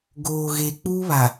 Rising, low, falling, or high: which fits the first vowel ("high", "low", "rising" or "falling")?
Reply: low